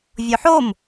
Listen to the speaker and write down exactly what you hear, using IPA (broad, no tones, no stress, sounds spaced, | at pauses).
vʲ o ħ o m